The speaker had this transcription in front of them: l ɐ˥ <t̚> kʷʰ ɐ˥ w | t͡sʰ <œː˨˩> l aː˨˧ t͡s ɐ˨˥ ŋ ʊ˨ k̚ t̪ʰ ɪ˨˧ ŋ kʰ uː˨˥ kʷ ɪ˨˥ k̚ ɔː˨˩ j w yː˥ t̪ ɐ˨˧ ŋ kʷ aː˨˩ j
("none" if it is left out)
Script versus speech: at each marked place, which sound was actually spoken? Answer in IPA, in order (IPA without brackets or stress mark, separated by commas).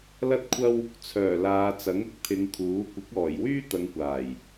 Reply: t̚, œː˨˩